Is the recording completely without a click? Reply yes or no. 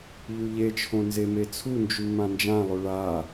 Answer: yes